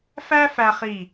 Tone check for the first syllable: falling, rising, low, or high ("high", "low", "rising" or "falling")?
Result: high